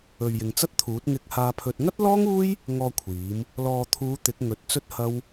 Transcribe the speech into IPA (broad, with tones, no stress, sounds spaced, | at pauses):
ɵ˨ ɥ j ɪ˨ ŋ t͡s ɐ˥ t̚ t̪ʰ uː˨˥ t̚ ŋ ɪ˧ k̚ h aː˧ pʰ ɵ˧ t̚ ŋ ɐ˥ t̚ l ɔː˥ ŋ uː˥ j | ŋ ɔː˨ kʷʰ iː˨˥ m | l ɔː˨ t̪ʰ uː˨˧ t̪ ɪ˨˥ k̚ ŋ ɵ˨˥ t̚ t͡s ɵ˥ t̚ h ɐ˥ w